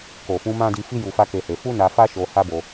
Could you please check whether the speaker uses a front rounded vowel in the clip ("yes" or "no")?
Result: no